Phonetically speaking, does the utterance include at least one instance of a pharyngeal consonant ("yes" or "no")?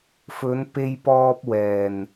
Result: no